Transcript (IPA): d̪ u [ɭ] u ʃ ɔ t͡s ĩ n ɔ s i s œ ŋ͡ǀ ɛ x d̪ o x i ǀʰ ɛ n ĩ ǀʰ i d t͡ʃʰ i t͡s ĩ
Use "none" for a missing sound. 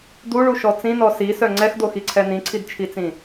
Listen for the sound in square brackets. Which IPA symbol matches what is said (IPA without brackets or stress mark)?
ɭ